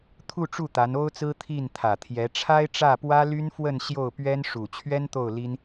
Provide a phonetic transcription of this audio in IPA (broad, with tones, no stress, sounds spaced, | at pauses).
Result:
t̪ʰ u˥˧ ʈ͡ʂ u˥˩ t̪ a˧˥ n o˥ ʊ̯ t͡s ɹ̩˥ t̪ʰ i˥˩ n t̪ʰ ä˨˩ t̪ʰ j ɛ˧˥ ʈ͡ʂʰ a˥ ɪ̯ ʈ͡ʂ ä˥˩ p w ä˥ l y˥ n f w ə˥˧ n ɕ j o˥˩ ʊ̯ p ɥ ɛ˥ n ʂ u˨˩ t͡ɕʰ ɥ ɛ˥ n t̪ o˥˩ ʊ̯ l i˥ n